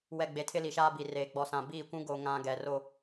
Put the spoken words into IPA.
wɛ˨ɡ͡be˨ tʰɪ˦li˨ʃaː˦ bi˨reː˨ ɡ͡bɔ˨sã˨ biː˦˨kʷũ˦ ɡo˨ ŋã˦ɡɛ˨ ro˦

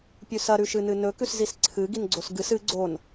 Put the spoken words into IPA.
pʲʉsɐ ɾʉʃɨnɨnɵ kʉszisǀʰɨ ɡinɡ͡ǀosɡɨs ɨ ɡ͡ǀon

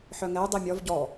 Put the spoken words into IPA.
ħœŋɛj dˤimʲɔv ɟɔ

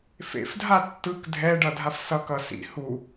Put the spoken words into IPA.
fḛfdʱa tːɯk dʱɛɖʌdʱaf sʌkʌ sḭ hu

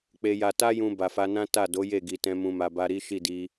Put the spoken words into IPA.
k͡pe˨ja˨ta˧jũ˨ ba˨fa˧ nã˦ ta˦˨ do˨˦je˦˨ɡi˨tɛ̃˧ mũ˧ma˧ ba˧ɾi˦ ʃi˦˨di˧

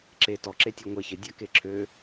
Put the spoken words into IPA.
ǁe tɔǁe tʲɔŋʷe çɪdʲa keǁʰø

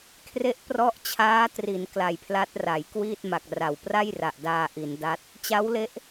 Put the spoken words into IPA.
kʰre˦˥ʔprɔ˦˥ʔ t͡ɕʰaː˦˥tri˩˦n kla˨˩jpʰla˦˥t̚ra˩˦j kwiː˥˩t̚ma˨˩k̚ra˩˦w pra˥˩jra˨˩ʔdaː˧ ʔi˩˦n da˦˥t̚ | t͡ɕa˦˥wle˦˥ʔ

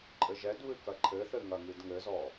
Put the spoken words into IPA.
ǃʼɘʒɛdβɨ kɐǃʰɘθɘ ŋɐŋidŋɘzɔ

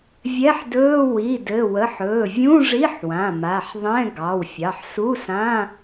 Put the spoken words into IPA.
vʲɛ˧˥˧ħdɵː˧˥˧ wi˩˧˩dɘ˩˧˩wə˩˧˩ħ ɵː˩˧˩vʲũ˧˥˧ ʐi˧˥˧ħwã˩˧˩ ma˩˧˩ħðˤɛ̃˧˥˧ ɡɑ˩˧˩wfʲɑ˩˧˩ħsu˧˥˧sã˧˥˧

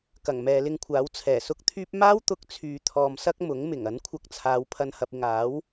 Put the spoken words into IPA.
kɐ˨˩ŋmɛː˨lɪ˧ŋkʷʰaː˨˥w t͡sʰɛː˨˩sʊ˥k̚t̪ʰyː˥p̚ maː˥wt̪ʊ˧k̚ t͡sʰyː˨t̪ʰɔː˨msɐ˥k̚ mʊ˨˥ŋmɪ˨˩ŋ ɐ˨˥nkʷʰɐ˧k̚t͡sʰaː˨˧w pʰɐ˧nhɐ˨p̚ɪ˨ŋaː˨˥w

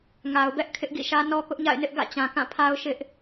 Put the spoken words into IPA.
ŋa˨ʊ̯bɛ˦ʔ kʰɪ˦ʔɡḭ˦˨ʃä˦ nɔ˦kʊ˦ʔɲa̰˦˨ɪ̯nɪ˦ʔ ɡä̰˦˨t͡ɕã˨kã˦˨pʰa˦ʊ̯ ʃɪ˦ʔ

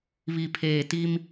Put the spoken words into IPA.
βi˨pʰeː˨ti˦m

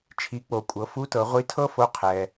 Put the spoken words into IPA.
t͡ʃʰi˩˧k͡po˩kʷʼɤ˩˧ fu˧˥tɤ˩˧ ʁʷi˧˥tʰɤ˥fo˧˥ qʰɛ˩

